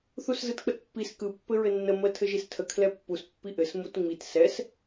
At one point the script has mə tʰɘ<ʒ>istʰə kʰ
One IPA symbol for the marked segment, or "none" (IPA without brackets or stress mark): ʒ